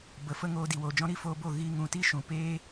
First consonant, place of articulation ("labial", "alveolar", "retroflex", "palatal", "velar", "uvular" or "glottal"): labial